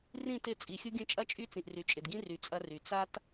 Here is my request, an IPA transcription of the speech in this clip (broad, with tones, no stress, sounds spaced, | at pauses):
r ĩ˦˨ t ɪ˦˨ t͡sʼ i˨ xʲ u˦ ɡʲ ə̃˦˨ t͡ʃʼ ɐ˦ t͡ʃʼ y˦ t͡s ĩ˨ ʔ r y˨ t͡ʃʼ ɪ˨ d ɡ ĩ˦ r y˨ t͡sʼ ɐ˦ r y˨ t͡s a˦ t